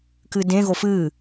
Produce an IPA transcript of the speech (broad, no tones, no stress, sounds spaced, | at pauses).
k ɨ d ẽ ɣ o f ɨː